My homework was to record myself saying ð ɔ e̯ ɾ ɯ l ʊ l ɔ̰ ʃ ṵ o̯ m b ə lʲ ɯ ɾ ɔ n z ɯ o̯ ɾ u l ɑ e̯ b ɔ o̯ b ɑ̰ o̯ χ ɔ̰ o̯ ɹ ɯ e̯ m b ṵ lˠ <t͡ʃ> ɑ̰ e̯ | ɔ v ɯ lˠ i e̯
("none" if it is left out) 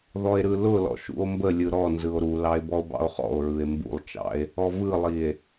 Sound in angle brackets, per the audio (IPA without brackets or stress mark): t͡ʃ